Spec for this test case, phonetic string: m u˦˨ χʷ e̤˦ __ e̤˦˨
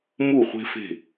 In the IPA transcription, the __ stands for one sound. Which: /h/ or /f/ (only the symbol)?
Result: f